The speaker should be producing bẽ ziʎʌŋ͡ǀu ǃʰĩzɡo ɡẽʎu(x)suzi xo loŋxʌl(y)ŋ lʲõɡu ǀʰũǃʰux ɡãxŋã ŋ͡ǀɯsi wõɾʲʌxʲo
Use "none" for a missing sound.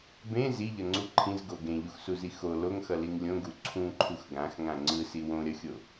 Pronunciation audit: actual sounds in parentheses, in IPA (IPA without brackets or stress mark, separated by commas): x, i